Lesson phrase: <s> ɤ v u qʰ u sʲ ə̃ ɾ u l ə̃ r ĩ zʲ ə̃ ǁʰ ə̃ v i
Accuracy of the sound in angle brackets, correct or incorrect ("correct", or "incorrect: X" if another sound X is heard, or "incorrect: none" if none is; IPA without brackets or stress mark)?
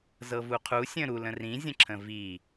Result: incorrect: z